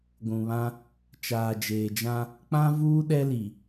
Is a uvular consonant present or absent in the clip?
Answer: absent